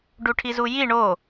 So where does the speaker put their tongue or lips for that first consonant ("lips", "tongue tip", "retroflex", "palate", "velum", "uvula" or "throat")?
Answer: retroflex